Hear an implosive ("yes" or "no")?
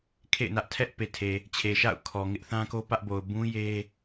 no